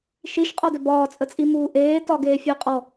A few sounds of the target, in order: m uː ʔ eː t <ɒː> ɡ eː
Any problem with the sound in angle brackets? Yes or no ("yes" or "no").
yes